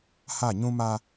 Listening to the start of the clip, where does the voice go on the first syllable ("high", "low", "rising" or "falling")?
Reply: falling